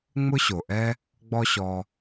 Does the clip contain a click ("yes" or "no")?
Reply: no